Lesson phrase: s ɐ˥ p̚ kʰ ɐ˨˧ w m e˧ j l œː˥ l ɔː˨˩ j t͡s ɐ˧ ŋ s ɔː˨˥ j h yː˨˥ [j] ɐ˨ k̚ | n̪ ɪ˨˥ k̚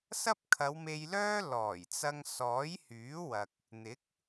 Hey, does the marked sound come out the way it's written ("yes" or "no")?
no